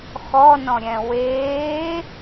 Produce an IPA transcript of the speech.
x ɔ n ɔ̃ ɾʲ ɛ̃ w eː

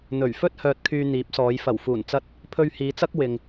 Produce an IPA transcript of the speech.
n̪ ɵ˨˩ ɥ f ɵ˥ t̚ h œː˧ t̚ kʰ yː˧ n̪ iː˨˥ p̚ s ɔː˨˧ j f ɐ˨˩ w f uː˨˩ n t͡s ɐ˧ t̚ | pʰ ɵ˧ ɥ h iː˨˧ t͡s ɐ˥ k̚ w ɪ˨ ŋ

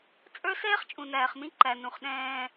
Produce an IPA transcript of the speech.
t͡sʼ ə˞˦ s ɛː˦ χ t͡ʃʼ ũ˨ n æː˨ χ m ĩ˦ ǃ æ˨ n ũ˨ χ ɗ ɛ̃ː˦

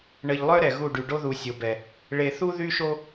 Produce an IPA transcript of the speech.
ɳ ə˨ ʎ lˠ œ˦ ɾ ɛ˨ ɣ u˦˨ ɖ y˨ ɖ o˦ ð u˨ sʲ o˨ b ɛ˨ | ɭ e˨ θ u˦ ð y˦ ʃ o˦

